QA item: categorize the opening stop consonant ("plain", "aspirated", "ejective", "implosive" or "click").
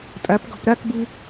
ejective